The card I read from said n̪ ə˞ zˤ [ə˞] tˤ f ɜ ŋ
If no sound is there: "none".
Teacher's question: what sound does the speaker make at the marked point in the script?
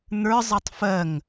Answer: ɤ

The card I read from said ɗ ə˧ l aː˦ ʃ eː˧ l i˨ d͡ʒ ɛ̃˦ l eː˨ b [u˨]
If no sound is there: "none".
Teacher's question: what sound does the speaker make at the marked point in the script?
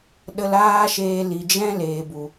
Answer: u˨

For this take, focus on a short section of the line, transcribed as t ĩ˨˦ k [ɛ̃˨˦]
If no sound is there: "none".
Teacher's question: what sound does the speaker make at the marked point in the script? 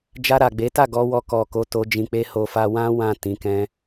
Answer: ɛ̃˦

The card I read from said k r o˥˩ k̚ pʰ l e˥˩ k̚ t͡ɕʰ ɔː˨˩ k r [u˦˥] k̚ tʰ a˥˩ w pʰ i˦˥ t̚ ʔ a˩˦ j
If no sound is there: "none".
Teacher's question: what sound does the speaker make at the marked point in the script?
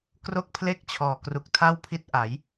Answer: u˨˩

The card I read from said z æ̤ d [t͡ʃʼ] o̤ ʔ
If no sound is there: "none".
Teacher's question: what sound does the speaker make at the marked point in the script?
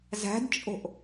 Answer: t͡ʃʼ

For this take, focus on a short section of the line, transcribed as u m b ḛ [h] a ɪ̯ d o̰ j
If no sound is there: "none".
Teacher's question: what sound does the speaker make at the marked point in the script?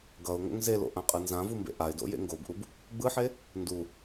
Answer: ʔ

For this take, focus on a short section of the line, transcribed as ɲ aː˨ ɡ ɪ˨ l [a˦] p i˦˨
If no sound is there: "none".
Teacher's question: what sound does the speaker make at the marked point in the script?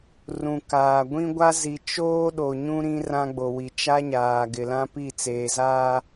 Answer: ã˦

